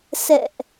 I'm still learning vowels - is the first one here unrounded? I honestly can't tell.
yes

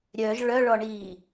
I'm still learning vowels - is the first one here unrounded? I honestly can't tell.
no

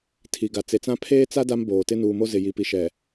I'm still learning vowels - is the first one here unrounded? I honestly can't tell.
yes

